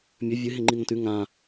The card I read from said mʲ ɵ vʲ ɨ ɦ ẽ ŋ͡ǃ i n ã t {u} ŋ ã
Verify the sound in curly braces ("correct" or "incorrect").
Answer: incorrect